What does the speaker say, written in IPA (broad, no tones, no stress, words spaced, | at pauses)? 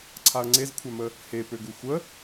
ǀʰaɐ̯ŋ͡ǀezkʷʰamə | he pøɡuxʷə